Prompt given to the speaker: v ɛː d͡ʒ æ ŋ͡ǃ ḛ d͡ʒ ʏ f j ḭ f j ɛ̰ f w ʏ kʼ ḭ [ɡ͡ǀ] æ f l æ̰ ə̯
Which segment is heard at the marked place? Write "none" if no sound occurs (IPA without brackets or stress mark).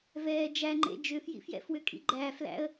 ɡ͡ǃ